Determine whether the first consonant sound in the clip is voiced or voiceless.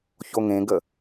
voiceless